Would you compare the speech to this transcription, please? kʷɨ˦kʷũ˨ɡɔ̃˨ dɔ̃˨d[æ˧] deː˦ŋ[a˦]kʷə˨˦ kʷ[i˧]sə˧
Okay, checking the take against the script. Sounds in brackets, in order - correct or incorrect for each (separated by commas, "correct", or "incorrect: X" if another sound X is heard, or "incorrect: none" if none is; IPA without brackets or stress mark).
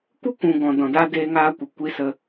incorrect: a˧, incorrect: aː˦, correct